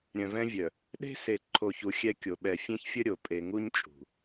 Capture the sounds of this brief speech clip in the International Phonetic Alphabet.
ɾʲœ̃˨vɛ̃˦vʲœ˨ | ɗe̤˦se˨ ǃʰo˨çu˨ xʲɛ˦kʲo˨ ɓɛ˨fʲẽ˦çfʲə˦ ɾʲo˨ pʼe˨ŋu˦ɲ t͡ʃʼṳ˨

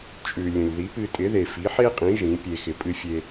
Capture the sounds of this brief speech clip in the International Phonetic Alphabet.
t͡ʃʼʉ˩ lʲə̃˩lʲði˩˥pɨ˧ tʼɪ˩˥ðe˩fi˩˥ ħe˥qʼĩ˩˥ ʒĩ˩˥pʲe˧xɪ˧ pʼɨ˧fʲe˧

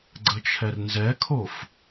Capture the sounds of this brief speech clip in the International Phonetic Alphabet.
ɡ͡ǀət͡ʃʰɛrnzɛkʰof

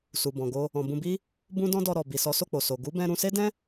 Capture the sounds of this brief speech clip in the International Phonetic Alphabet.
su˨bɔ̃˨ɡo˧ | ɔ̃˨ bũ˧bi˦ | bũ˦dɔ̃˦dɔ˧ɾɔ˨ bi˨sɔ˨˦so˦˨k͡po˨ so˨ ɡu˨˦bɛ̃˧ ɾũ˧se˦dɛ̃˦

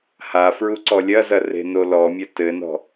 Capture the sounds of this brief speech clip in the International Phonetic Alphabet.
ha fɹuǀɔlʲɐzɐ re̤nolɔmʲɐ tɘnɔ̤

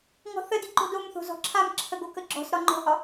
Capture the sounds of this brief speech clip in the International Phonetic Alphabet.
ŋɔ̤θədi ǃo̤domθo̤ zɔ̤ǁʰamǁʰə ɡokəɡ͡ǁɔ̤sɾɒ ŋ͡ǃɔ̤hɒ

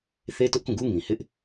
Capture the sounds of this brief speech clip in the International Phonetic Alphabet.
θe˦tʊ˦ʔkũ˦˨ɡu˦ ŋĩ˨hɪ˦ʔ

